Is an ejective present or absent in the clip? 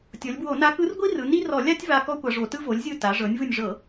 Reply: absent